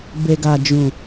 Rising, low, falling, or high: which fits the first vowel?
low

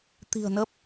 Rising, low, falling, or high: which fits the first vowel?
low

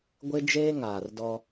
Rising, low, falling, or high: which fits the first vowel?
high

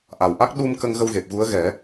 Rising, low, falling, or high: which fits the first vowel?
low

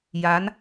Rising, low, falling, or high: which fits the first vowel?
rising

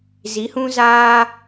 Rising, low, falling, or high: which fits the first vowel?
rising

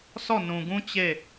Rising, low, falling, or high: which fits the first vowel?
falling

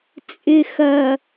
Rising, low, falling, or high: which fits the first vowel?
low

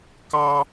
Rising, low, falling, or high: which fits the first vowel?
high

